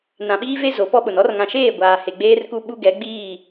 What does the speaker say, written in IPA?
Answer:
n ã˨ ɓ iː˦ v e˦ z o˨˦ p ɔ˦ ɓ ʊ˨ n ɔ˦ r ŋ ã˨ ʃ eː˦˨ ɡʷ aː˨ h e˨ ɡ͡b eː˦ r k u˦ ɓ u˦ ɡ ɛ˨˦ ɡ͡b iː˦˨

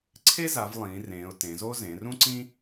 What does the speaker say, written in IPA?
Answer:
ǀʰ e˦ z a˩˧ v lˠ ĩː˩˧ r ẽː˩˧ ʊ̯ t ẽ˩˧ z o˦ z ẽ˩˧ r ũ˦ ǀ ĩ˦

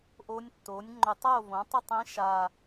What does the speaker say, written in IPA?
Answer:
ʔ o˧˥ nʲ tː o˩˥ nʲ ŋ͡ǃ ɵ˧˩˧ tˤ o˥˨ v õ˩˥ tˤ ʌ˥˨ tˤ ĩ˧˥ ʃ a˨˩

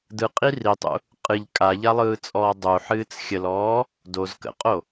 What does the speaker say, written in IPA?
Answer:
d ɯ qʼ i r i tˤ ṵ | qʼ ɨ ʎ kʼ a ʎ a lˠ ɯː t͡sʼ ɔː dˤ u ħ ɨː t͡s xʲ ə l ɔː | d o z k ə̰ qʼ o

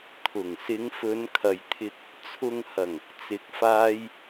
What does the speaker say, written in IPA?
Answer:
t̪ʰ ʊ˨˩ ŋ s ɪ˨˧ ŋ f ɵ˨˧ n kʰ ɐ˨ j t̪ʰ ɪ˧ k̚ | t͡sʰ ʊ˨ ŋ h ɐ˨˩ ŋ | t͡s ɪ˨˥ k̚ f aː˧ j

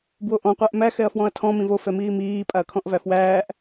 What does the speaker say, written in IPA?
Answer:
b w o ʔ ɔ̃ qʷ æ ʔ m æ x ɛ ɐ̯ f w ɔ̃ ɐ̯ tʰ ɔ̃ m ĩ v o f ɛ m iː m iː pʼ a ɐ̯ kʰ ɔ̃ ʔ v æ f w æː ʔ

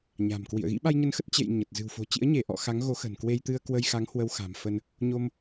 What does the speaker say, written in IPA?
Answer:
ɲ a̤˨˩ m k w ḭ˧˨ ə̯ ɣ ḭ˧˥ ɓ a˧ j ɲ ə˧ n x ə˦˥ t̚ t͡ɕ ḛ˧˨ j ɲ ə˨˩ t̚ z ɨ̤˨˩ w f o̤˨˩ t͡ɕ ḭ˧˥ ə̯ ɲ e˧˩ ʔ ɔ̰˧˨ x a˨˦ ŋ ɣ o˨˦ x ə̤˨˩ n k w e˧ j t̪ ɨ˧ ə̯ k w ə˧ j x a˨˦ ŋ h w ə˧ w x a̤˨˩ m f ə˧ n | ɲ o˧ m

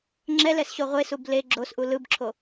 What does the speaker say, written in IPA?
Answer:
ŋ͡ǁ ɛ l ɛ s ɕ o ʁʷ e s u b l e ɡ͡ǁ o s ʔ u l ɯ b ǁʰ o

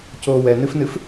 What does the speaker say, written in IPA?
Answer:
c oː w ɛ n ɨ f n ɨ f

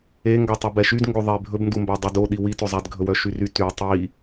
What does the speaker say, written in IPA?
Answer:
e ŋ ɡ ɔ tˤ u b ɛ ʃ y d ŋ ɡ o ðˤ e bʱ ɵ b n d u m b æ dˤ y d o ɗ i w i t ɵ zˤ æ d ɡʱ ɵ w œ ʃ y r y t y tˤ i

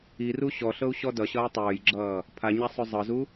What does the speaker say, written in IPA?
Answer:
i r u ɕ ɔ ɬ ɤ u̯ ɕ ɔ d ʌ ɕ ʌː tˤ ɵː j ɡ͡ǁ ʌː | pʰ a ɲ a sˤ ɵ zˤ ɤ z u

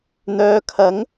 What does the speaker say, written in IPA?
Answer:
n̪ œː˨˧ kʰ ɐ˨˥ ŋ

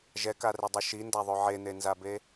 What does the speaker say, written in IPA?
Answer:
ʒ ɛ k a r e dˤ ɯ ʃ i n d a ðˤ o ʕ e n̪ e n z a b e

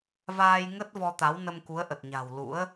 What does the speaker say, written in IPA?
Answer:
v aː˧ j ŋ ə˦˥ t̚ v ɔ˧ t̪ a˨˦ w n ə˧ m k u˨˦ ə̯ ʔ ə˨˩ t̚ ɲ a̤˨˩ w l ṵ˧˥ ə̯

